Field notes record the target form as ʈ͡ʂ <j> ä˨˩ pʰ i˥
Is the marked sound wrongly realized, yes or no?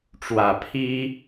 yes